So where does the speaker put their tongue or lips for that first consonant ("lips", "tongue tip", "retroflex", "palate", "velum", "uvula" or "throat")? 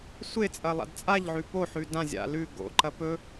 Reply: tongue tip